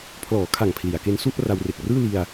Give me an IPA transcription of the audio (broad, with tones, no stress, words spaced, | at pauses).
pʰlɔː˩˦ kʰa˨˩ŋ pʰli˩˦a̯ke˦˥n su˥˩ʔra˧w re˨˩k̚rɯː˥˩li˧a̯